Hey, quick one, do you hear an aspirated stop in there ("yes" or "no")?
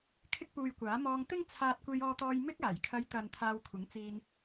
yes